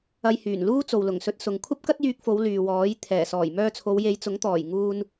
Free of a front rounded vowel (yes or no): no